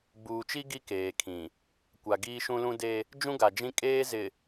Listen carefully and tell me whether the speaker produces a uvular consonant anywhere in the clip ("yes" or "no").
no